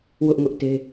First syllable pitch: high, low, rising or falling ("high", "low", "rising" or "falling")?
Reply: high